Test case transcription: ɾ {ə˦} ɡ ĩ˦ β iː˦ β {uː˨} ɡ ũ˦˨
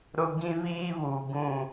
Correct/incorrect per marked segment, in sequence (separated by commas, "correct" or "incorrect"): incorrect, correct